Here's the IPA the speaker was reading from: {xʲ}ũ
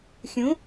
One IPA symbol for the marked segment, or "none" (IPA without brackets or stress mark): xʲ